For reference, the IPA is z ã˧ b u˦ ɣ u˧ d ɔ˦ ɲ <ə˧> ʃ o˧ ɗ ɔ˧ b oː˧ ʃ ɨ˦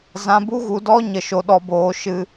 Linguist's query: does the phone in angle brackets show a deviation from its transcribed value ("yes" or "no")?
no